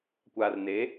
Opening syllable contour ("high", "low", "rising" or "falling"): low